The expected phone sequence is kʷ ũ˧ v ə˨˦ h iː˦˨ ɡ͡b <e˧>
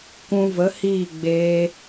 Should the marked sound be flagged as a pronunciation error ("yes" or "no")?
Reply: yes